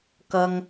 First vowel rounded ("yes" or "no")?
no